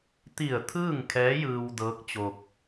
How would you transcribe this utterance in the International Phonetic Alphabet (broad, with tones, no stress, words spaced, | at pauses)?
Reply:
t̪i˧˩ə̯ t̪ʰɯː˥˨ŋkʰɛː˧˥ jɯː˧wdɤː˧˥k̚ t͡ɕo˧k̚